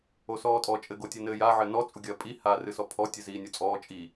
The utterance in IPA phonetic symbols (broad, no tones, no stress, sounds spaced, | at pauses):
o s ɔː tʼ ɔ t͡ʃʼ ɘ ɡ o tʲ ɘ n ɘː j a ʕ ɘ n ɔ t͡sʼ u ɡʲ ɐː pʼ i h aː r ɨ s ɔ pʰ ɔ tʲ ɨ z iː nʲ o t͡sʼ ɔː t͡ʃʼ i